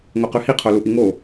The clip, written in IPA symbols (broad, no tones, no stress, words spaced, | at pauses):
ŋoqʉhi qʰoluʔiŋo